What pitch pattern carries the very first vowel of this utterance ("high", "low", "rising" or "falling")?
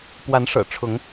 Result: rising